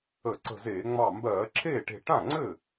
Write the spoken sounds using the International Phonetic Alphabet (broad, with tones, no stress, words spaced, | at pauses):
ə˧˩˧ǀə̤˧˩zeː˧˩˧ ŋ͡mɑ˧˩mbɜː˧˩˧ǁʰeː˥˩ʈe̤˧˩ ʈã˥˩ŋ͡ǀɘ˥˩